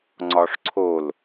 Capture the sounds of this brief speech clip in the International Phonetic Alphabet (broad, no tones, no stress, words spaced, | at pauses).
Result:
ŋ͡ǀɒʂǀʰol